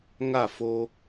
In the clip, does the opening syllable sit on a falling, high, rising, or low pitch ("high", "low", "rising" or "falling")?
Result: falling